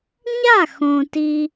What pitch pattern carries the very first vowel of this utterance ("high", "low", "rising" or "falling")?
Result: falling